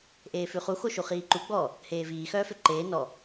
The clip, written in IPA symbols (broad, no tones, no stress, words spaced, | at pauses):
ʔeːfʉχu xoʃuχiːǃu ɡ͡bɔ | heːviː xœːføǃeː nɔ